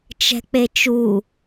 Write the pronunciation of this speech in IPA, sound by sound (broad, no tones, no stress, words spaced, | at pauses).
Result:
t͡ʃɛ̤k͡pet͡ʃu